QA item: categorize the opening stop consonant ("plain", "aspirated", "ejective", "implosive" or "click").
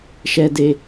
plain